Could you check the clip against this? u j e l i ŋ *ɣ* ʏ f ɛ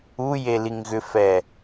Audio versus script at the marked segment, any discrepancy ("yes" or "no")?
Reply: no